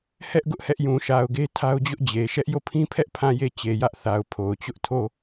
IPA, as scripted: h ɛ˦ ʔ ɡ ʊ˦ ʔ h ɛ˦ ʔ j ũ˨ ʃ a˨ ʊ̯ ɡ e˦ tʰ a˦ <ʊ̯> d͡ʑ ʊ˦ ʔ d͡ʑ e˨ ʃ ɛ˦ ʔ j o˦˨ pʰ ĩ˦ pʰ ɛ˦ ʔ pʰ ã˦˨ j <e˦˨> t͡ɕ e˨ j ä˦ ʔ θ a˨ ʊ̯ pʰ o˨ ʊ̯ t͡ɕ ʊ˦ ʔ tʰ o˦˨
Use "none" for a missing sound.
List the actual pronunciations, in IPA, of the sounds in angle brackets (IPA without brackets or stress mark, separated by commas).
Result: ʊ̯, e˦˨